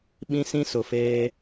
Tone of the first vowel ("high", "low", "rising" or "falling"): high